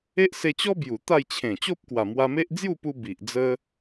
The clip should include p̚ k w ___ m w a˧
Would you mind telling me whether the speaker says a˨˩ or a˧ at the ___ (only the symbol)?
a˨˩